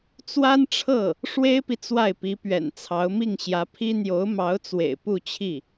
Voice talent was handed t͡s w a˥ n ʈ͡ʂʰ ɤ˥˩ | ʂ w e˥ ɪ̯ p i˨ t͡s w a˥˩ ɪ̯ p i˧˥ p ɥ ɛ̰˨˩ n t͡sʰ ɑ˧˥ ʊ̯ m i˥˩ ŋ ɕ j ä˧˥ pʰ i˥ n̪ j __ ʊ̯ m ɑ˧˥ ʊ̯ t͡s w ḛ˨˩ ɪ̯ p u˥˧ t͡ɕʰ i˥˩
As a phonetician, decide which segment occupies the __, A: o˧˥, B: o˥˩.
A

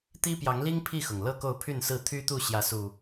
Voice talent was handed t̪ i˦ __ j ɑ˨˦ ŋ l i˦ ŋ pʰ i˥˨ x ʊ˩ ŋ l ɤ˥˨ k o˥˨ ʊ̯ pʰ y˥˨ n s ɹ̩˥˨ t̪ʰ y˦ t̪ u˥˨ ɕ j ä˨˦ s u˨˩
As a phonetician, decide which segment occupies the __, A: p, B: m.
A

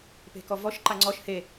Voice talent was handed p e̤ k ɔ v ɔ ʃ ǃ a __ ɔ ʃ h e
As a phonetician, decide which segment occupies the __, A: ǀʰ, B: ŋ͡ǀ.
B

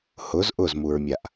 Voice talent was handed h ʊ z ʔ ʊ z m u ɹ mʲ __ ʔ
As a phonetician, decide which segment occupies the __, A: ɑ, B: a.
B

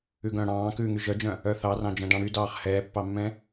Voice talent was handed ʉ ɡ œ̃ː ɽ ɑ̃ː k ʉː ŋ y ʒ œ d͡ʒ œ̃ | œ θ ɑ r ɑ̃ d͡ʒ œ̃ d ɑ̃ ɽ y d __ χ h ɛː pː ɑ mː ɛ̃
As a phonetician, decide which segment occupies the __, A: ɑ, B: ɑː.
B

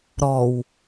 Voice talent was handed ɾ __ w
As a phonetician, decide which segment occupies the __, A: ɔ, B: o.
A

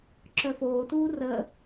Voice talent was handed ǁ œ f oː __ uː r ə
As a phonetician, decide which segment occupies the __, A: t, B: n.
A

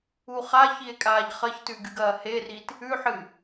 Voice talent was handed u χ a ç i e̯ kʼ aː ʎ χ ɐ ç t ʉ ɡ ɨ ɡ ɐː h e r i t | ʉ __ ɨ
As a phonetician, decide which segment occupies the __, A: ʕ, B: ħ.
B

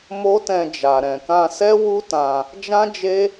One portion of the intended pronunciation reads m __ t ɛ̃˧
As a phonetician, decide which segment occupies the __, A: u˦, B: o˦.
B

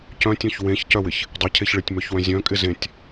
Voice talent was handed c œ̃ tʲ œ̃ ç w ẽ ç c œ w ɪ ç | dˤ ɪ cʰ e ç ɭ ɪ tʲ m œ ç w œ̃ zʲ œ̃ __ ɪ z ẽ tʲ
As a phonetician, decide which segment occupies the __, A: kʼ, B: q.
A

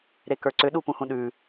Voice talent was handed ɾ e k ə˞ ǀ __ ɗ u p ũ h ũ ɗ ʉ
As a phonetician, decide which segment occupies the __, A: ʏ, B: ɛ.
A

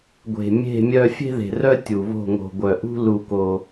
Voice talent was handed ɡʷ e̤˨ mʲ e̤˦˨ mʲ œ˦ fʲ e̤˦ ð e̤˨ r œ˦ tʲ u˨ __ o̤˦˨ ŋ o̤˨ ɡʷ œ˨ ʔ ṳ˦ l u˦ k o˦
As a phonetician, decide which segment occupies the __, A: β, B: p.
A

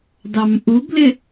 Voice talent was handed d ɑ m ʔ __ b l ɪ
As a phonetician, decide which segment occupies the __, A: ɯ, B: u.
B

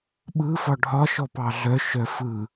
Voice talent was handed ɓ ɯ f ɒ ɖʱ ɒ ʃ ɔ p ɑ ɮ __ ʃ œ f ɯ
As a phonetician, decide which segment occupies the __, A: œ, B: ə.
A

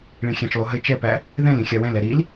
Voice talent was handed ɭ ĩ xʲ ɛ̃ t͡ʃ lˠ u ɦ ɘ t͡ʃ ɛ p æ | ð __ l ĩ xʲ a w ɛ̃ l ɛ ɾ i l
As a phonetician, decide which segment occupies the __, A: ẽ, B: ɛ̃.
B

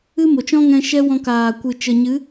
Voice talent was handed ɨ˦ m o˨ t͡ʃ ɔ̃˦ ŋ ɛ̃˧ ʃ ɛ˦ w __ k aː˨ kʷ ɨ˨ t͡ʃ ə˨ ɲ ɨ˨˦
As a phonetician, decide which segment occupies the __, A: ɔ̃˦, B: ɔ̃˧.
B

